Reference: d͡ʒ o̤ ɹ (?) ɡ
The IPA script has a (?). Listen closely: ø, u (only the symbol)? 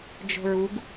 u